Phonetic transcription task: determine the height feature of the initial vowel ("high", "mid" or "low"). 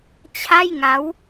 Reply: low